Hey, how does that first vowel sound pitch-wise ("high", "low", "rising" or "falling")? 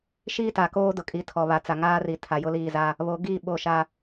high